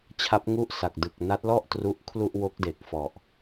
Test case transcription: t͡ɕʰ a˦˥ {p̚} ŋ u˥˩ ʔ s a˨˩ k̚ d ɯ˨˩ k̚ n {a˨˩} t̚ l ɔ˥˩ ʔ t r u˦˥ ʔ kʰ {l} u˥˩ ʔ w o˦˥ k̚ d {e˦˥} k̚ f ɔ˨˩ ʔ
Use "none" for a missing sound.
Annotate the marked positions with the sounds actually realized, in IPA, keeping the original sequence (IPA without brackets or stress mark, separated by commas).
p̚, a˦˥, l, e˨˩